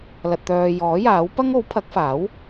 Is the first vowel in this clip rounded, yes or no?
no